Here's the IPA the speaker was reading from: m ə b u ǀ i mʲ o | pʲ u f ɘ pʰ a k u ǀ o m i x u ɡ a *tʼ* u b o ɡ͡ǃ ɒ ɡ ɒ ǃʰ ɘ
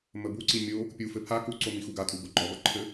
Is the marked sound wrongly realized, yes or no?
no